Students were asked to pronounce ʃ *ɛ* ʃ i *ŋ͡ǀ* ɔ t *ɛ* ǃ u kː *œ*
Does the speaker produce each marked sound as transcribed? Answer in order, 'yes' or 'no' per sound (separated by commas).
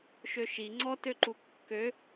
no, yes, no, no